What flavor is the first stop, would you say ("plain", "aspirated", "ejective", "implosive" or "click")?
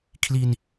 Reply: aspirated